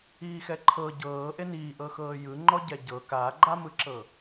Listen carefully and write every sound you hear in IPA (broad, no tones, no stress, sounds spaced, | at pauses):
iː x ɛ ǃʰ ɤ ɟ ɤː ʔ e n iː ʔ ɤ x ɤː j ɯ ŋ͡ǃ ɔ ɟ ɛ ɟ ɤ k aː ɡ͡ǃ a m ɯ ǁ ɤ